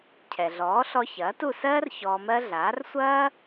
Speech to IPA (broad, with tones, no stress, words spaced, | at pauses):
cʰɛ˩ɮɔː˩˥ɬɔ˧ çɐː˩˥tu˥˩sɜː˥r çɔː˧mɜ˥ ɮaː˩˥rsʷɐː˥